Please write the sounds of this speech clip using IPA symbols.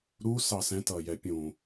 ɾ u s ɑ s ɛ̃ t ʌː j ɛ pʲ ũ

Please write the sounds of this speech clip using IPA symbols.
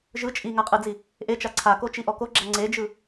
ʒ ɯ t͡ʃʼ i ŋ a qʼ ɯ d͡z i | ʔ e t͡ʃ a ǀʰ a k o t͡ʃ i ʔ ɔ k o ɡ͡ǁ a ŋ͡ǀ e d͡ʒ ɯ

